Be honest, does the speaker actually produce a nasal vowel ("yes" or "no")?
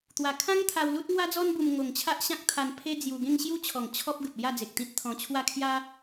yes